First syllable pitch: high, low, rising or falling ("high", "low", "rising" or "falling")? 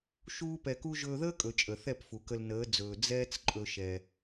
high